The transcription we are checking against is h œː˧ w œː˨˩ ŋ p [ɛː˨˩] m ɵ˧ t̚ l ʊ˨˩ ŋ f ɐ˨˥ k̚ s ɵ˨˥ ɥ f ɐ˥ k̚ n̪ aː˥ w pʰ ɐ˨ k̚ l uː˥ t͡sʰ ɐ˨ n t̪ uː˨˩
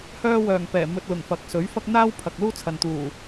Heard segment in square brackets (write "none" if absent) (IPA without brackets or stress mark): ɛː˨˩